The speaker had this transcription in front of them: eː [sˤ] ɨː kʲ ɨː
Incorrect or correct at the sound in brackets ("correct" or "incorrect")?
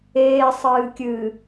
correct